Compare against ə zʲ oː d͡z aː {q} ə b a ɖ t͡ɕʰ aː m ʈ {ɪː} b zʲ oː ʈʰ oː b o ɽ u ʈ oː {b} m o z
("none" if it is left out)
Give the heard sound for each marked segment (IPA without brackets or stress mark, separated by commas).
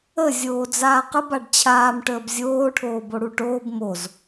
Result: q, əː, b